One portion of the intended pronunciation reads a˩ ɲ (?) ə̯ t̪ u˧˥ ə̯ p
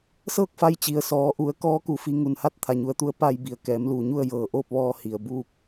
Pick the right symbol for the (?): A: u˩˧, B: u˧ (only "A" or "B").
B